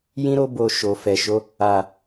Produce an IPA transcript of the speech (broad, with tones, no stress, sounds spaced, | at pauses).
j ĩ˦ ɾ o˦ b o˧ ʃ o˨ f ɛ˨ ʃ o˨˦ | a˨